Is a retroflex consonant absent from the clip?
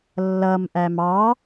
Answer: yes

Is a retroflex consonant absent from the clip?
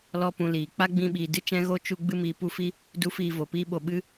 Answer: yes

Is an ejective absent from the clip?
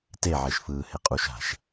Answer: no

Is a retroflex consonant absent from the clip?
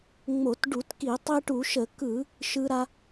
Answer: no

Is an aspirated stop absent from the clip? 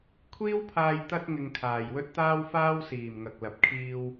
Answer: no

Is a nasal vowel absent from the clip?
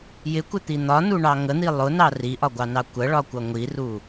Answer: yes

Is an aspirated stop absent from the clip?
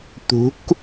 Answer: yes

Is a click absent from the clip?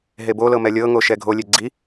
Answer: no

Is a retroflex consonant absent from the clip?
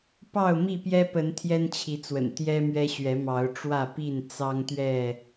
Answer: no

